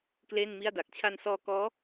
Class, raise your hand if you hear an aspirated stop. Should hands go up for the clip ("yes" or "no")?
yes